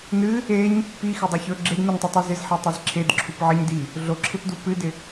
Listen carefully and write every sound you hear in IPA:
nɨ | eɲ | pixɪdˤɵ çɵ ɡ͡ǁednuɲtˤɨtˤɨ zɪzħetˤiz ǁʰedǁʰup ʕɪɲdi | ɮoǁʰɪpdu pɨdɪ

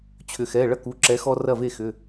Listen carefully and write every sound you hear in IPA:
t͡ɕʰʏ˩xɛ˩˧˩ ɭɐ˦ ku˩˧˩ǁɛ˨˦ xɔ˦rɐ˥˩ve˥˩xʏ˩˧˩

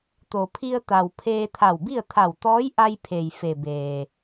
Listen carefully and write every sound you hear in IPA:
t̪o˩pʰi˧ə̯ t̪a˩w pʰeː˧t̪ʰa˧˩wbi˥˨ə̯ t̪ʰa˧˩wt̪ɔː˧˥jʔa˧jpʰe˩j fe˩beː˩

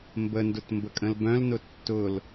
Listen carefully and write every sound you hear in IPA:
mbəndʊt mbəkʼə̃lbœ̃lnʊ tːʊl

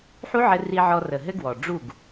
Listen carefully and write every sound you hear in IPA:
ħu˦ʕɘ˧ ri˧ʕɔ˧rə˨ ɦɘ˦ɡwɔ˨ ɖ͡ʐu˦˨ɡ

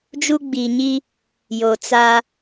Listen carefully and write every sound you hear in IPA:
d͡ʒu˦ɡ͡biː˨ɲi˦ | jo˨t͡sa˦

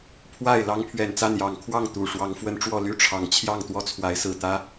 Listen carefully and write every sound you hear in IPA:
pʰwa˥˨ɪ̯ lɑ˦ŋpʰɥɛ˨˩nt͡sa˥˨n jɑ˨˩ŋkʰwɑ˥˨ŋ t̪u˨˩ ʂwɑ˨˦ŋfwə˦nʈ͡ʂwɔ˥˨ ly˥˨ʈ͡ʂʰɑ˨˩ŋt͡ɕʰjɑ˥˨ŋ t̪wɔ˦t͡sʰwa˨˦ɪ̯sɹ̩˨˩t̪ä˦

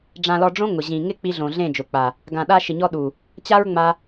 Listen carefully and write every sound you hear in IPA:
ɖ͡ʐã˨lɔ˨ɖ͡ʐõ˧ ŋʊ˨ʑĩ˨ ŋɪ˦ k͡pi˧ɮõ˨ɮẽ˦˨d͡ʒʊ˨ k͡pa˨ | ɡã˨ɗa˧ʃɪ˨ɲɔ˧ ɗu˨ | t͡ɕa˦ɹŋ͡ma˧

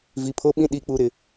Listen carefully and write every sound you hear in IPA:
vi˨pʰo˦ɓĩ˦ ɗi˨k͡pu˨ ɾɪ˨

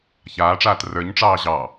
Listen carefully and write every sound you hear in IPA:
çaːʈ͡ʂaːt rə˞ɲʈ͡ʂɑː ʑɑ

